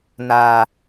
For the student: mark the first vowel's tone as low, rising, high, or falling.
low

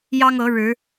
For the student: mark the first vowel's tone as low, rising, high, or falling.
high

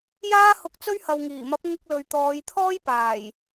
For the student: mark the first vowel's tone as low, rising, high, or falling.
high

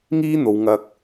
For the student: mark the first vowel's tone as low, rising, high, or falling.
high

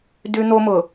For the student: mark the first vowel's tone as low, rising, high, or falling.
high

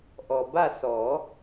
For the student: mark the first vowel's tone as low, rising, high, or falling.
low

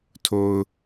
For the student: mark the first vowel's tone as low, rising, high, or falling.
low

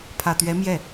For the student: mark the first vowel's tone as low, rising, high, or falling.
low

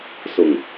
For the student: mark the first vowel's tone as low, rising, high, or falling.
low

